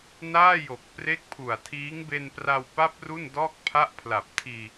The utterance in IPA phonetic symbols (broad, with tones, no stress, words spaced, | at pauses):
naː˥˩jo˨˩k̚ pre˦˥k̚pʰu˨˩a̯tʰiː˦˥ŋ be˧npra˧wpa˦˥p̚ ru˥˩ndɔː˥˩k̚ pʰa˦˥ʔpʰla˨˩p̚tʰiː˧